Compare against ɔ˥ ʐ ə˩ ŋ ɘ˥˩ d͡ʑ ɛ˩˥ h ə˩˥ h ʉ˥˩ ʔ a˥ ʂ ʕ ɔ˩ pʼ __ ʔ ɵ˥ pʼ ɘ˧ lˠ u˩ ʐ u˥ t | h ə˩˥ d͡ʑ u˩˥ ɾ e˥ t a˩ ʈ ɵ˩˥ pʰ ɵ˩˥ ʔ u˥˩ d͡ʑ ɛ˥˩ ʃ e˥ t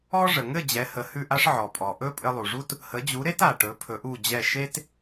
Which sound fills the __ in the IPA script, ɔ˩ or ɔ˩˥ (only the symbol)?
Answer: ɔ˩